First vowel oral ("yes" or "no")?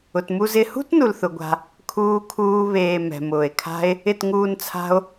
yes